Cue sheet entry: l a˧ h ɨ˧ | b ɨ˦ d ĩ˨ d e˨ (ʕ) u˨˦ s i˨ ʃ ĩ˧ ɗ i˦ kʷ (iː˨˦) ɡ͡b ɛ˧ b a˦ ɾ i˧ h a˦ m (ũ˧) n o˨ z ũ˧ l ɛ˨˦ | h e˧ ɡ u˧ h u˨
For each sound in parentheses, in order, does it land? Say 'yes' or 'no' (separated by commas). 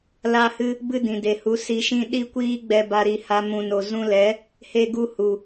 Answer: no, no, no